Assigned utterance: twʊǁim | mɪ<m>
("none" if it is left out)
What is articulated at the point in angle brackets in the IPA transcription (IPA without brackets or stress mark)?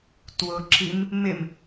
m